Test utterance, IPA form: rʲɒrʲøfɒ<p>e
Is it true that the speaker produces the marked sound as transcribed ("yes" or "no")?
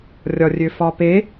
yes